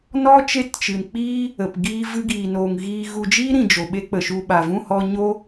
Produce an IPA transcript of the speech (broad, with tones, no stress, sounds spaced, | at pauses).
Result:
n ɔ˦ t͡ʃ e˦˨ t t͡ʃ ɨ˨ n k͡p iː˦ | ə˨ p ɡ iː˧ v ɨ˧ ɡ iː˨ n oː˨ ŋ ɣ iː˧ ɣ u˧ d͡ʒ iː˦ ɾ ĩ˨ d͡ʒ o˨ ɓ e˦ k͡p ə˨ ʃ u˦˨ ɓ a˨ v ũ˦˨ h ɔ˧ ɲ o˦